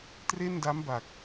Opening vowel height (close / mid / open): mid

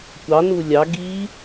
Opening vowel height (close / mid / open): open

